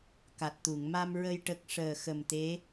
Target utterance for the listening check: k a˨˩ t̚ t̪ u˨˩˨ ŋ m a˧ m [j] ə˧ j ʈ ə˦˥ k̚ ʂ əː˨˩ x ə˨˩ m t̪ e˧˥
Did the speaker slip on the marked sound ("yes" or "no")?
yes